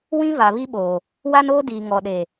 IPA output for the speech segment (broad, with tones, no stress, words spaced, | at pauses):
wĩ˦va˨ βi˦ɓoː˨ | wa˦noː˦diː˨ ŋɔ˨ɗe˨